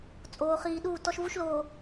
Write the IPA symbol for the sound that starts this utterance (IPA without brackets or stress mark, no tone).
t͡sʼ